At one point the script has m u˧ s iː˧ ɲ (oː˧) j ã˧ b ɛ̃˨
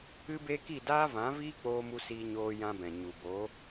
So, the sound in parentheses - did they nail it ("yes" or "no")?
yes